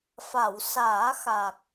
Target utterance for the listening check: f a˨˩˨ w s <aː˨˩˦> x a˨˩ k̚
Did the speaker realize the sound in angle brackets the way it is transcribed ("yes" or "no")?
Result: yes